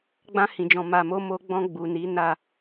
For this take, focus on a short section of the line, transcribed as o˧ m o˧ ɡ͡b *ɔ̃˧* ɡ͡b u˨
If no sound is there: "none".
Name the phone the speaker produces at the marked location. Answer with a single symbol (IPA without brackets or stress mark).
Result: ɔ̃˧